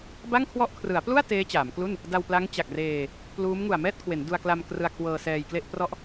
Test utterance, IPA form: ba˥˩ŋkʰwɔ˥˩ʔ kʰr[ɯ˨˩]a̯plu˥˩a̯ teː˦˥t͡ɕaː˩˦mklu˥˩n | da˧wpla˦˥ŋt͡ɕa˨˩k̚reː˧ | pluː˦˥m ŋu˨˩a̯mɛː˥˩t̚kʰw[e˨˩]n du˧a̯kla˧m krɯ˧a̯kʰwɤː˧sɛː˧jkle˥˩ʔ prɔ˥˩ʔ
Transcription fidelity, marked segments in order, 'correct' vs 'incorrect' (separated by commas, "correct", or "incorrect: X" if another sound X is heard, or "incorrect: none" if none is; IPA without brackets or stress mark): incorrect: ɯ˩˦, incorrect: e˩˦